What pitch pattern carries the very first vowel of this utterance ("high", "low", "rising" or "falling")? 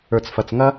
low